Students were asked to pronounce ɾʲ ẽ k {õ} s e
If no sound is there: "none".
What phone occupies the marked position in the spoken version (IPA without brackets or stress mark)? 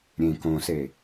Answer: õ